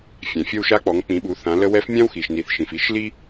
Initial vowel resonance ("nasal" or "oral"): nasal